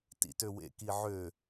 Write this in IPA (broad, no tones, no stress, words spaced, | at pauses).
tḭtøwḛ kiʕø